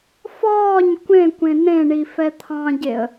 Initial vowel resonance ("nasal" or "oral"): oral